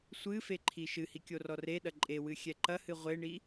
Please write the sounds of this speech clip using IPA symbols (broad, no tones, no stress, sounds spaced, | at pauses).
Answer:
sʷ ɨ f e ǃʰ i ʃ ɨ h i kʲ o r ɔ r e ɗ ɐ ǃʼ e w ɨ xʲ ɛ ǃ ɐ h ɨ ʁʷ e ɳ i